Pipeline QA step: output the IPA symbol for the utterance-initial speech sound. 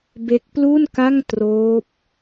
b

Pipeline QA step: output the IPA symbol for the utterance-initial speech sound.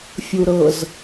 fʲ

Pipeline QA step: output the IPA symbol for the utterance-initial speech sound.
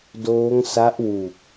d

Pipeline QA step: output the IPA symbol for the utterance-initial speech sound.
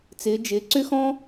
t͡s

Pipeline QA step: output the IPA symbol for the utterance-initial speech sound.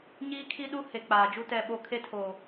ɲ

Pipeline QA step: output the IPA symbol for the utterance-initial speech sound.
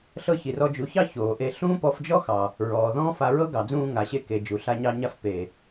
ɬ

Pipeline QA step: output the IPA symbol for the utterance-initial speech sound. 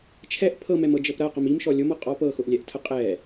t͡ʃʰ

